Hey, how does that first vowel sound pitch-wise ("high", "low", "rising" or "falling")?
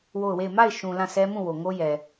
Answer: falling